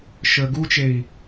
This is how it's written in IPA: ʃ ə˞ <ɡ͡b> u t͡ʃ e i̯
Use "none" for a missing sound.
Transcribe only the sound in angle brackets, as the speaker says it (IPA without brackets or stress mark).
ɡ